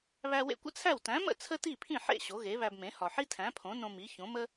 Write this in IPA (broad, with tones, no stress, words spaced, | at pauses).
βæ˧wḛ˧kʷə̰˥t͡sʰæ˥˩w tæ̃˩˥mə̰˥˩ t͡sʰə˥ti˥˩pʰĩ˥˩ ħḛ˥˩ ɕo˩˥ɣe˩˥βæ˧bmẽ˩˥ hɒ˩ħi˥tʰæ̃˩˥pʰõ˩˥ nõ˧mi˩˥çõ˩˥mə˥